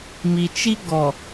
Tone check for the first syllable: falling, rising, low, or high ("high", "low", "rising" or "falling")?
low